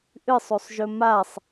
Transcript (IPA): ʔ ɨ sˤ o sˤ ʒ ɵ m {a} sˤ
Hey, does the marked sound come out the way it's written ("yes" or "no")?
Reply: yes